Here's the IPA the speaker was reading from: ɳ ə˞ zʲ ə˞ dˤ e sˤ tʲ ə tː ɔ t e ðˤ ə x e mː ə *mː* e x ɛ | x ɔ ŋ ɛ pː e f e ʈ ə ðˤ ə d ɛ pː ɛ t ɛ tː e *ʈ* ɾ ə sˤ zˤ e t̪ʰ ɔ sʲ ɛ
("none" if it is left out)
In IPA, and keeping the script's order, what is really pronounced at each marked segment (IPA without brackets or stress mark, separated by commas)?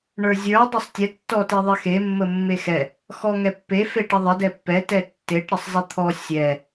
mː, ʈ